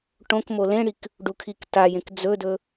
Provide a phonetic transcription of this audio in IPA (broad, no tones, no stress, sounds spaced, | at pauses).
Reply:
ʈ õ k m o l ẽ ɽ i k | ɖ u kʰ i k t a j ẽ k d͡z ɵ d ɵ